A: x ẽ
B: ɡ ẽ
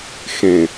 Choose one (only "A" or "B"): A